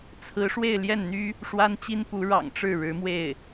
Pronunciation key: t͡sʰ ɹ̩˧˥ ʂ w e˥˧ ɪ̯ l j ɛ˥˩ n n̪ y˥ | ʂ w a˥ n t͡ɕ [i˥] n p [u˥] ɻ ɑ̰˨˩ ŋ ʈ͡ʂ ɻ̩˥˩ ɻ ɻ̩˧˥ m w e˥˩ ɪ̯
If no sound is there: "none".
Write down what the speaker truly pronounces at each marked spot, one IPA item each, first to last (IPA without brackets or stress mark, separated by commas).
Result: i˥, u˧˥